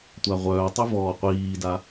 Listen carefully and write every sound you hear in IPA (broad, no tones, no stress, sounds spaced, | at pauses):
tʷ a ʁʷ œː tˤ y v ɔː qʷ iː d a